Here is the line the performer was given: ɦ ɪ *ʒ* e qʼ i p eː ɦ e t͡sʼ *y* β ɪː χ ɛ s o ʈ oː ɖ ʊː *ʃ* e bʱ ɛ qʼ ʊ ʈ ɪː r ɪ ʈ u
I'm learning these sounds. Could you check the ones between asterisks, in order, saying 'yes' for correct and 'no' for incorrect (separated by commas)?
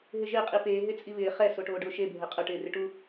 yes, no, yes